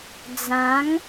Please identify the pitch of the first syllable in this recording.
rising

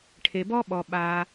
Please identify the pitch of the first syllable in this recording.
low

